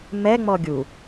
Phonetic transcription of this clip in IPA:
m ɛ ŋ͡m ɔ ɡʲ u

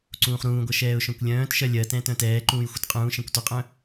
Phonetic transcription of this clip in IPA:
ǀ ũː χ ɾ ũː ɡʷ ʌ ʃ ɛː ʊ̯ ʃ œ̃ kʷ lʲ œ̃ː t ʃ ɜ lʲ ɜ t ɛ̃ t œ̃ t ɛː ǃ ũː j xʷ ʌ t qʼ ũː ʃ ɛ̃ kʷ t ɔ qʼ œ̃

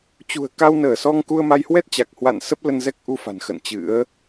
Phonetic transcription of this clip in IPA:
t͡ɕ ṳ˨˩ ə̯ k a˧ w n əː˧˩ s ɔ˧ ŋ k u˧ ə̯ m a˧ j h w ɛ˦˥ t̚ t͡ɕ a˨˩ k̚ h w a̰˧˨ n s ə˦˥ p̚ l ə˧ n z ɛ˦˥ k̚ ʔ u˧ f a̤˨˩ n x ə̰˧˨ n t͡ɕ ɨ̰˧˥ ə̯

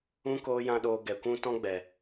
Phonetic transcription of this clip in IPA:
ũ˧ k oː˦ j ã˦ ɗ oː˧ ɡ ɛ˨ kʷ ũ˦ t ɔ̃˦ ɡ͡b ɛ˨

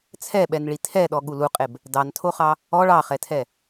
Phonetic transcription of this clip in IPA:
t͡sʰ ɛ ɓ ɛ n ɭ i tʰ ɛ ɗ ɔ ɠ u l u qʼ e b | d ɑ n tʰ o χ ɑ | ɔ ɭ ɑ χ ɛ tʰ ɛ

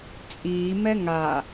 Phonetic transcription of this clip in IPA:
t͡sʼ iː m ɛ ŋ a

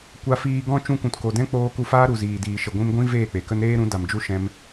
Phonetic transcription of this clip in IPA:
kʷ a˦ f iː˧ ɡ ɔ̃˦ t͡ʃ ũ˧ kʷ ũ˨ t k o˨ d ɛ̃˦ k͡p oː˦ k u˧ f aː˦ ɾ u˨ z iː˨ d iː˨ ʃ ə˨ ɡʷ ĩ˧ m ɡʷ ĩ˦ v eː˦˨ k͡p e˨ k ə˦ n ɾ eː˦ ɾ ũ˨˦ d a˨ m d͡ʒ u˦ ʃ ɛ̃˧ m

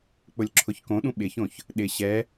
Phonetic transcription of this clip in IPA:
k͡p ʊ lʲ ǁʰ ʊ ç k õ ɗ ũ ɓ ɪ ç õ ç | ɗ ɪ ɕ ɛ

